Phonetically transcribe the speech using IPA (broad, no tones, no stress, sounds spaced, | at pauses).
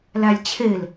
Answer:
l æ lʲ t͡ɕʰ e l